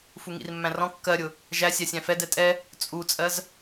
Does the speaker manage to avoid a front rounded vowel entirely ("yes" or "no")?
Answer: yes